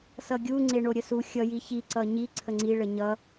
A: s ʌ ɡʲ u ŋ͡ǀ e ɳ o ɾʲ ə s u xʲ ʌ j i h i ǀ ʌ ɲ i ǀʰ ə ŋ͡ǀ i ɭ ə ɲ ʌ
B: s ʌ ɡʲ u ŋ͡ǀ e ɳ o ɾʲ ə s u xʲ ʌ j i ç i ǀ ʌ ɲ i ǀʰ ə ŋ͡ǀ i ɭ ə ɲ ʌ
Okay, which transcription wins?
B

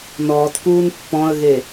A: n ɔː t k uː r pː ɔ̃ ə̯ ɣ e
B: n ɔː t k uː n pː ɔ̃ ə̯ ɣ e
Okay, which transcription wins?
B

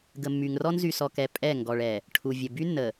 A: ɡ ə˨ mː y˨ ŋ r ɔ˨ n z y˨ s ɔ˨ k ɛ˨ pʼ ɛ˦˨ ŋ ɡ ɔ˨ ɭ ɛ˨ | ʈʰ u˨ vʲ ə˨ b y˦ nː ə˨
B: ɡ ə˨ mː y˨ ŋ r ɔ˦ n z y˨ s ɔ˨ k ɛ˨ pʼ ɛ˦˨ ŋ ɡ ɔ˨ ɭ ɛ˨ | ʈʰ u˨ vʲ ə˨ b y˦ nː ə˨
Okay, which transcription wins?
B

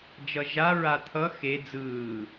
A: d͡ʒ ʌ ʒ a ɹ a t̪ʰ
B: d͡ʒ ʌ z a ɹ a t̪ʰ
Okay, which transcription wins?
A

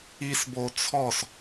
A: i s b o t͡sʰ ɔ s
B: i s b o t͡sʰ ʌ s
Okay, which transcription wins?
A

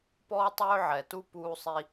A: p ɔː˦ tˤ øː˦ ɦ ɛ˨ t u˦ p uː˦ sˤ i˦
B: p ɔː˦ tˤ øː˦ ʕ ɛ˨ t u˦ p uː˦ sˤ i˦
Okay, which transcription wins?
B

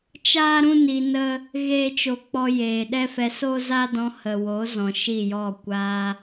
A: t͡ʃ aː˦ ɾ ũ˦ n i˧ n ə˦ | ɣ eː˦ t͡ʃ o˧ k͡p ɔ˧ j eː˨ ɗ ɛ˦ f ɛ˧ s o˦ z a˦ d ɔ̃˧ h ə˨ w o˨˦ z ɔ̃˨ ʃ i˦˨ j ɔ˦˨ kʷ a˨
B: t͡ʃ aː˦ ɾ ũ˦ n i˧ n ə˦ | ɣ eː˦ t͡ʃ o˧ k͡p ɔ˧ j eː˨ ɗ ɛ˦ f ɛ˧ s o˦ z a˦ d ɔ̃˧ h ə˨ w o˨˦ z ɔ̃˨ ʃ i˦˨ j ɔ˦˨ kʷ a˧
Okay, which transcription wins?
B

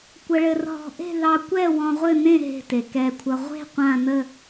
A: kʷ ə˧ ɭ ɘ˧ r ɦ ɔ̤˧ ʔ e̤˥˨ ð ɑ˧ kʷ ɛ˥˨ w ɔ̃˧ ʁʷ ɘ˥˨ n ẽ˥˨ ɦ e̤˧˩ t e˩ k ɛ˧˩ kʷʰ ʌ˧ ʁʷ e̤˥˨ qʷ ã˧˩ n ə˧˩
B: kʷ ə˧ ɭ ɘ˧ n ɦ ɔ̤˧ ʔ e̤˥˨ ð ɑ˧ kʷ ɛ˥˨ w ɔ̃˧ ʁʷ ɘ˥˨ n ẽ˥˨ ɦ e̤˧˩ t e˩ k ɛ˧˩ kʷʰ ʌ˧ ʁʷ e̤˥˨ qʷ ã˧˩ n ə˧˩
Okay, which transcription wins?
A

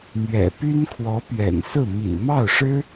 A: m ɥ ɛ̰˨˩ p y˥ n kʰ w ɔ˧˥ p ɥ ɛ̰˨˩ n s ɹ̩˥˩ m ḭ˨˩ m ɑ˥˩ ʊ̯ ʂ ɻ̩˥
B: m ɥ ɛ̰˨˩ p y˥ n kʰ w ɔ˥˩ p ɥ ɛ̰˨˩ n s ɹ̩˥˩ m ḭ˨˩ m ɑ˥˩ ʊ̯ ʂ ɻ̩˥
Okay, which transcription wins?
A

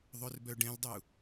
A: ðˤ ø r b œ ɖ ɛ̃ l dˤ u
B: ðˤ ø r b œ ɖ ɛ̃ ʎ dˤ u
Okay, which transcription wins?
A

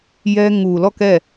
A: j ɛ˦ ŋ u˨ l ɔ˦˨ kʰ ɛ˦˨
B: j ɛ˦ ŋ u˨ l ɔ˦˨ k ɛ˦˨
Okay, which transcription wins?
B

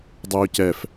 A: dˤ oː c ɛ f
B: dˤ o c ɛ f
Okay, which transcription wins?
A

